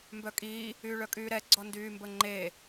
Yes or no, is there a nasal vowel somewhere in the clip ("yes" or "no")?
no